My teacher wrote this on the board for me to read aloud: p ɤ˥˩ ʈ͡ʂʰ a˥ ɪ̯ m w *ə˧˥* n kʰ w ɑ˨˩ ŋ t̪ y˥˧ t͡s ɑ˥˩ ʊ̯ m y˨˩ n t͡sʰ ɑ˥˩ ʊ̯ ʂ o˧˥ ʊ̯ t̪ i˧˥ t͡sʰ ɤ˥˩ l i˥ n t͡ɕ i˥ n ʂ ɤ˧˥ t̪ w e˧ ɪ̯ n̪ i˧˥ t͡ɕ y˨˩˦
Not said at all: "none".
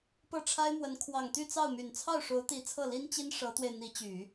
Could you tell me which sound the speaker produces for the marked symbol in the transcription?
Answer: ə˧˥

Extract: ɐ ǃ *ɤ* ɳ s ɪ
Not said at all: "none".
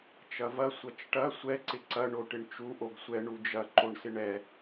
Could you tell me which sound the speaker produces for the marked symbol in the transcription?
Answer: o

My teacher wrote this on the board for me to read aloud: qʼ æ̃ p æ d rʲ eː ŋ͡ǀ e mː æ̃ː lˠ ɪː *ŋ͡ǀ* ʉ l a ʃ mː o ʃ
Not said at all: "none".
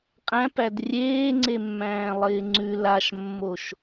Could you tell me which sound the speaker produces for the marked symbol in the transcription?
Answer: ŋ͡ǀ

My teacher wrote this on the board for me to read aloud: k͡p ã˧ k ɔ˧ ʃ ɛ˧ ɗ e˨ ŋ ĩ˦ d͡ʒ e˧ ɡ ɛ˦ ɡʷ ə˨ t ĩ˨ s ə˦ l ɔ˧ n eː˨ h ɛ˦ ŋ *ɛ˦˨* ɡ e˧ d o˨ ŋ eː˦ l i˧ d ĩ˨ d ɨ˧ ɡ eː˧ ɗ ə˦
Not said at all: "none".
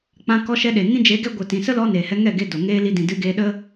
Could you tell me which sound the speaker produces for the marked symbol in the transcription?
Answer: ɛ˦˨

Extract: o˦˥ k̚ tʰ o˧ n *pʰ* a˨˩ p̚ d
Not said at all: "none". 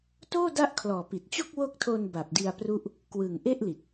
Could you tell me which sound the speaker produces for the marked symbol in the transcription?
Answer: b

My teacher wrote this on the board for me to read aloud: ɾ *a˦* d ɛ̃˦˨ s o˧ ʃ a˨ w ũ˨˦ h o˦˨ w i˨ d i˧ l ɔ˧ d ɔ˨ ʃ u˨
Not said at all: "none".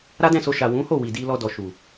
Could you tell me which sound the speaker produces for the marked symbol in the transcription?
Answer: a˦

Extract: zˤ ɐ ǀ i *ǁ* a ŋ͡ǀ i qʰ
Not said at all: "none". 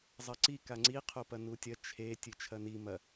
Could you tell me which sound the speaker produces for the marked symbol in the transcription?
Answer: k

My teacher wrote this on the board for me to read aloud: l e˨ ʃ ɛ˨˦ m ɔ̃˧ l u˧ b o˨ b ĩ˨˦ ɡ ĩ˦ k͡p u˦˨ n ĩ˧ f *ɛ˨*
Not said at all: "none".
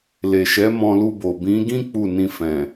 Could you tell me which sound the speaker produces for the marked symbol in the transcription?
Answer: ɛ̃˨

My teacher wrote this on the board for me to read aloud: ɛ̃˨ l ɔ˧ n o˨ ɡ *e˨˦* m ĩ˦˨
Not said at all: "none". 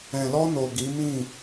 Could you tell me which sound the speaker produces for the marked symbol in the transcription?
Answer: i˨˦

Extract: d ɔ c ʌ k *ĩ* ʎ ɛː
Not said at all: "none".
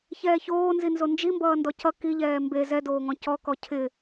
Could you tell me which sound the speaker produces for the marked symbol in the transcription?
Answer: i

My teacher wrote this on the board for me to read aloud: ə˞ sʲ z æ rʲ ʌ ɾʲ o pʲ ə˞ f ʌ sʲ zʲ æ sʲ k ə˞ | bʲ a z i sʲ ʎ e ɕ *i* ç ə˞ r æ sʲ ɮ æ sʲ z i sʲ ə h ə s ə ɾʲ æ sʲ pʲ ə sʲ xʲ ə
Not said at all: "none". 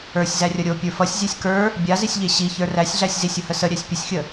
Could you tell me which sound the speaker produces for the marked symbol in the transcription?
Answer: i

